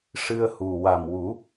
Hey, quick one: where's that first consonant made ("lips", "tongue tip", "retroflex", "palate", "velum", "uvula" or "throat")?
retroflex